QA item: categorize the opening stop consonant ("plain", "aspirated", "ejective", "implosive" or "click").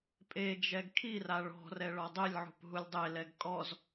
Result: ejective